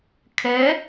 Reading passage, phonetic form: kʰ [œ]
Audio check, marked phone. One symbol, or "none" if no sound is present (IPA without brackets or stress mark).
ɛ